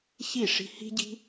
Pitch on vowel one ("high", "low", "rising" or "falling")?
falling